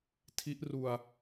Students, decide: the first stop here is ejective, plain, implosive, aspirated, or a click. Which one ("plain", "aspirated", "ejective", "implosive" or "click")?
aspirated